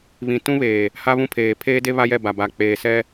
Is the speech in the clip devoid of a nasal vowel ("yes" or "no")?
no